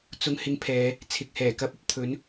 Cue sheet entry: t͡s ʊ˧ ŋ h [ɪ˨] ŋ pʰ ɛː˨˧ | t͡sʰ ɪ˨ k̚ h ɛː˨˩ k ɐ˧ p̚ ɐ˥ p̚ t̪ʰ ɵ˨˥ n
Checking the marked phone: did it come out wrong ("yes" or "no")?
yes